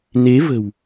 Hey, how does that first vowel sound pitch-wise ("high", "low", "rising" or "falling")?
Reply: rising